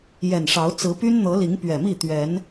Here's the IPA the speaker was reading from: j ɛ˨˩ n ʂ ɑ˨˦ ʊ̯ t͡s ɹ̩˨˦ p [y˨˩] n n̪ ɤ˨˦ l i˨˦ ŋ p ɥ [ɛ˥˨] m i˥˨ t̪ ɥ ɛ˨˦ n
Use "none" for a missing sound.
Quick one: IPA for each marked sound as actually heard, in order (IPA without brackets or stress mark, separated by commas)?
y˦, ɛ˨˩